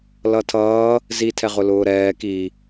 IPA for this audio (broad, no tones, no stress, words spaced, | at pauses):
lʌtʰʌː | zi tʰɛʁʊlʊːɾɛː ki